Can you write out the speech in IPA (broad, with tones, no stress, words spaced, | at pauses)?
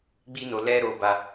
ɡ͡bi˦no˧ lɛ˦ɾo˧ ba˦